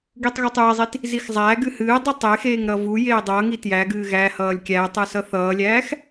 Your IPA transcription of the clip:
ɡ i tˤ ɣ u tˤ j e zˤ i t | z i x zˤ æː ɡ ɨ h ɨː dˤ ɨ tˤ e x eː ŋ ɾ ʌ v u j eː dˤ ʌː ŋ i t j æ ɡ ɨː ɣ æ h ʌː lʲ kʲ æː tˤ ɨ s ʌ θ ʌː lʲ æː x

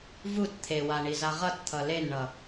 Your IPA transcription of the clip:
v u t t̪ʰ e w a ɳ i z a ʁ ʌ t t̪ʰ ʌ l e n ɳ ʌ

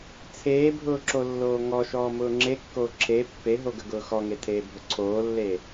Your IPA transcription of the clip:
t͡sʰ eː bʱ ʊː ǁ o lː oː ŋ ɔ ʃ ɔː m ʊː ŋ͡ǁ e kː oː ǁʰ e pː e ɦ o ɡ ə ɡ ʊː x ɔ ŋ e tʰ eː bʱ ʊ ǀʰ oː lː e

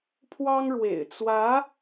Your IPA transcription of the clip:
pʰ w ɑ˥ ŋ ɻ w ḛ˨˩ ɪ̯ t͡s w ä˧˥

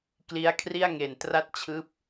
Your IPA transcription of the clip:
k l i˦˥ a̯ kʰ r i˥˩ a̯ ŋ e˨˩ n t r a˥˩ t̚ t͡ɕʰ ɯː˦˥ p̚

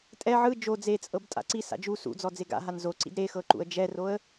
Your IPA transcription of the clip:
tʼ ɛ ʕ ɯ d͡ʒ o d͡z e t͡sʼ ɤ b tʼ a̰ ǀ i s a̰ d͡ʒ u s ṵ d͡z ɔ d͡z e ɡ a̰ ɦ a n z o ǀ ḭ d ɾ e x ɤ ǃ ṵ ə̯ d͡ʒ ɛ r o ə̯

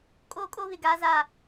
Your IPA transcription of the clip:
kʼ oː˦ kʼ o˦ β ɪ˨ ɡ aː˦ z aː˦˨

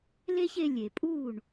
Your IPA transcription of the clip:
l e˥ ç e˧ lʲ e˩ pʼ u˥˩ ɳ

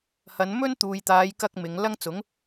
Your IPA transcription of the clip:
h ɐ˨˧ n m ɵ˥ n t̪ uː˨ j t̪ aː˨˧ j k ɐ˥ k̚ m ɪ˨˧ ŋ l ɐ˥ ŋ t͡s ʊ˨˥ ŋ

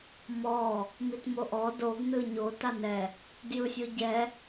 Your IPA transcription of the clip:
m ɔ | m i t m o ʔ ɔ d o ɡ n ɯ ɲ o t a n ɛ | d j ɯ sʲ o ɟ ɛ

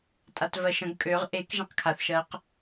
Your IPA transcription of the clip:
tʼ a t v ɜ ʃ ə̃ ɡ kʼ ø ʁ ʔ e k ʒ ɛ̃ q kʰ a θ ʃ ɜ q

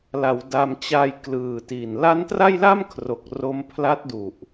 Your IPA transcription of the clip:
l a˩˦ w d a˧ m t͡ɕ a˧ j k l ɯː˨˩ t i˨˩ n l a˦˥ n t r a˥˩ j l a˥˩ m kʰ r o˨˩ k̚ r o˦˥ m pʰ l a˦˥ t̚ d u˨˩ ʔ

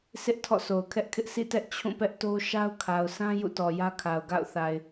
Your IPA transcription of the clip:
sʰ ɪ˦ ʔ tʰ ɔ̰˦˨ sʰ o˨ ʊ̯ kʰ ɛ˦ ʔ kʰ ɪ˦ ʔ sʰ ḭ˦˨ t ɛ˦ ʔ t͡ɕʰ ũ˦˨ p ɛ˦ ʔ t o˦ ʃ a˦ ʊ̯ kʰ a˨ ʊ̯ s ã˦ j ṵ˦˨ t ɔ˨ j ä˦ kʰ a˨ ʊ̯ ɡ a̰˦˨ ʊ̯ θ a˨ ɪ̯

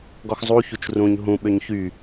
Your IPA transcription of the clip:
ɡ ɔ x zˤ u ç u t͡ʃ r ũ ɲ ɦ ũ ɓ ø ɲ ç y

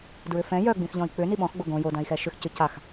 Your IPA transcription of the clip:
d ɹ ʏ f ɛ̃ j œ ɡ͡b ĩ x ʎ ɔ̃ i̯ k͡p ʏ n i ɓ ɔ̃ x ɡ͡b o ɡ õ j o d ã i̯ x ɛ ʃ ʏ x c ʏ c a x

